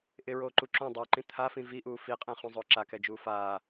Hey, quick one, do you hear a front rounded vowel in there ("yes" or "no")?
no